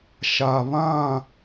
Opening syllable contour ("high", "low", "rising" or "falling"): low